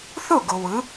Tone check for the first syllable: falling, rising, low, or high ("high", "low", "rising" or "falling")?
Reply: falling